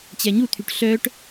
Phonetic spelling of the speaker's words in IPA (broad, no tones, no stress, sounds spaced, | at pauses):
t͡ɕ ɛ ɲ u t̪ʰ y ʈ ɬ œ ʈ